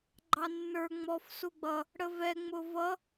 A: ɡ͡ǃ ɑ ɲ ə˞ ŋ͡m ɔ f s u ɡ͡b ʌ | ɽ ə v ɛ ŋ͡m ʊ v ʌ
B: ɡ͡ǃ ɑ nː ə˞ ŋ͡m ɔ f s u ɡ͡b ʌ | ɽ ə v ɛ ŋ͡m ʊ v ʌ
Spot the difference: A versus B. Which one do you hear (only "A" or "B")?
B